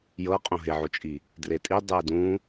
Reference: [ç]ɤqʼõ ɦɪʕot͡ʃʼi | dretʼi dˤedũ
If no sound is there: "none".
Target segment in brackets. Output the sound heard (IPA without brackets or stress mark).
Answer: j